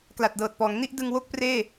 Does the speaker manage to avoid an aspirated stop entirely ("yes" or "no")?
yes